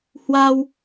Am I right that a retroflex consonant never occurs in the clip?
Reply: yes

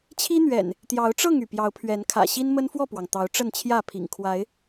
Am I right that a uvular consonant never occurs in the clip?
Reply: yes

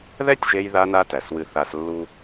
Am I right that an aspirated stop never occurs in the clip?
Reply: yes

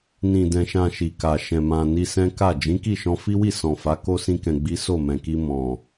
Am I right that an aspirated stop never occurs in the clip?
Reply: yes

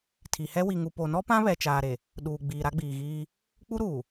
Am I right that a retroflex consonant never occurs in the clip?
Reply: yes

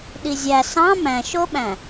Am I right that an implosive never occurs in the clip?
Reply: no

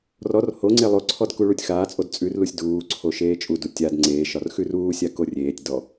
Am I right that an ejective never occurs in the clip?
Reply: no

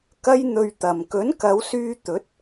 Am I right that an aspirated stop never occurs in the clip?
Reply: yes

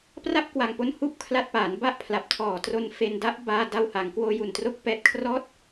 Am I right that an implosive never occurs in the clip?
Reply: yes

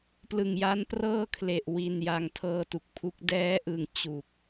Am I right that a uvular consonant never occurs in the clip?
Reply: yes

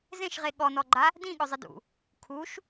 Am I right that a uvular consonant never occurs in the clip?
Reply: no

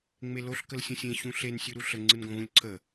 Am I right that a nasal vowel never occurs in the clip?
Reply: no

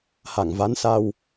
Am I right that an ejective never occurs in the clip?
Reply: yes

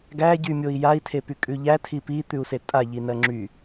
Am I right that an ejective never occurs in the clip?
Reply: no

